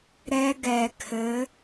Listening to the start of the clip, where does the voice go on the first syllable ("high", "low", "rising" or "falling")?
high